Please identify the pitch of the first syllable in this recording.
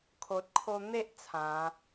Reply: low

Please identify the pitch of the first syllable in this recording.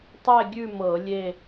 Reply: falling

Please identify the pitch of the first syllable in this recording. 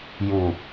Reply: low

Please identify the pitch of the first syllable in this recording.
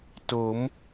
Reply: rising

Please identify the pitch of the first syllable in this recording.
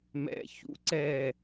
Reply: low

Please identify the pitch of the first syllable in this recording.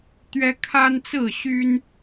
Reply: high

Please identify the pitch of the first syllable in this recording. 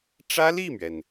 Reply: high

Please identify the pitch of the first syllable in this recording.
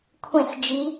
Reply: falling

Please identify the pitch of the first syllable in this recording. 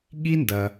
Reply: high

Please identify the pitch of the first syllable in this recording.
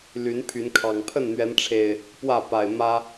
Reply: rising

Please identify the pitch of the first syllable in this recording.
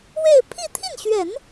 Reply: falling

